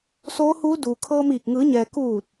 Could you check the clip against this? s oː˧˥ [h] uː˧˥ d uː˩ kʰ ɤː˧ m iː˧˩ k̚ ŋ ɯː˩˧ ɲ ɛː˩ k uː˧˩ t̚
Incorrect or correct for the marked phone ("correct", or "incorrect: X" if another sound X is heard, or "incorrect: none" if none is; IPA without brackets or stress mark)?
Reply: correct